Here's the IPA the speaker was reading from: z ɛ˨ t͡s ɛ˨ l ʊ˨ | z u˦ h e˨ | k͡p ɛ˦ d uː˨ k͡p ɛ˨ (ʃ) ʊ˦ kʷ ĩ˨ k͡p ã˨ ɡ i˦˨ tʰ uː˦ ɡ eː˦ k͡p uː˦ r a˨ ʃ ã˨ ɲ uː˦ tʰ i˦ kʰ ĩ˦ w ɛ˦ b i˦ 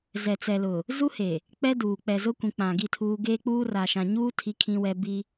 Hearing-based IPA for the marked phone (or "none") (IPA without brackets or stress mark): z